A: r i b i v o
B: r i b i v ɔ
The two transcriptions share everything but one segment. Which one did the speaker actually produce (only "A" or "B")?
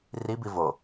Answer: A